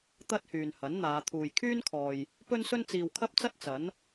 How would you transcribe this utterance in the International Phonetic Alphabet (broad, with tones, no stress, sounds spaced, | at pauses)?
t̪ ɐ˥ t̚ h yː˨ n h ɐ˨˥ n n̪ aː˨˧ t̪ʰ uː˨ j kʰ yː˥ n kʰ ɔː˨ j | p ɵ˥ n s ɵ˥ n t͡s iː˨ w kʰ ɐ˥ p̚ t͡s ɐ˥ t̚ t͡s ɐ˨˥ n